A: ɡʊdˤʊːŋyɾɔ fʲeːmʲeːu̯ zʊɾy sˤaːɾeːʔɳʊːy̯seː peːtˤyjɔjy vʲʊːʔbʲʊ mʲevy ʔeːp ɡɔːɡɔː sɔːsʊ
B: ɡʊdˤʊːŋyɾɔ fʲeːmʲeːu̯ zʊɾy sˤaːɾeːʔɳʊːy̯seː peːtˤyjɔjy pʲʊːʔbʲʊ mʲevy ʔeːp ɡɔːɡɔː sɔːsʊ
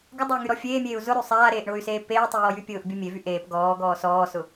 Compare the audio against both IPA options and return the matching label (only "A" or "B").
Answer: B